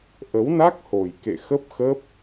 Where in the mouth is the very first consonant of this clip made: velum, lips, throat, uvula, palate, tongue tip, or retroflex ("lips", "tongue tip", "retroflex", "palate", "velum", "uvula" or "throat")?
throat